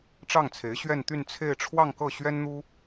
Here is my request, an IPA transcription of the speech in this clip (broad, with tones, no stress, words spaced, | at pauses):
ʈ͡ʂɑ˥˩ŋt͡sʰe˧˥ɪ̯ɕɥɛ˥˧nt̪y˥˧n t͡sʰe˥˧ɪ̯ ʈ͡ʂʰwɑ˥˧ŋ kɤ˥˩ɕɥɛ˥nn̪u˥